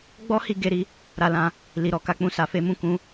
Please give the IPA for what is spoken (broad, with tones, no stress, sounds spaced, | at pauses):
ɡ͡b ɔ˦ h i˧ ɡ e˧ ɾ i˧ | ɾ a˧ l ã˧ | l i˨ ɾ ɔ˨ k a˨˦ k͡p ũ˧ s a˧ f e˦ m ũ˦˨ k ũ˨˦